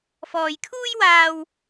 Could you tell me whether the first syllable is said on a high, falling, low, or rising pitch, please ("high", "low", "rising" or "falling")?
low